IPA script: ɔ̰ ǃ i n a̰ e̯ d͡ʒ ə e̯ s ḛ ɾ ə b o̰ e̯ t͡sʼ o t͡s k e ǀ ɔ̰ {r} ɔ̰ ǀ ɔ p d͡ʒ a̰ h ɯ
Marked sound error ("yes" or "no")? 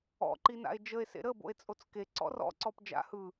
no